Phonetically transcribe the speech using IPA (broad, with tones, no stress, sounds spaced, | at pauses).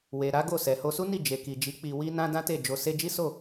w e˨ ɾ a˨˦ ɡ o˦˨ s ɛ˨ h o˧ s u˦ n i˦˨ d͡ʒ e˨ k i˨ d͡ʒ i˨˦ k͡p i˧ w i˦ n ã˦ d ã˦ t e˦˨ d͡ʒ o˧ s e˧ d͡ʒ i˦ s o˦˨